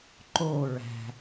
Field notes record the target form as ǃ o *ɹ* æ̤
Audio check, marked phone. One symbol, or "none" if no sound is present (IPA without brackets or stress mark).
ɹ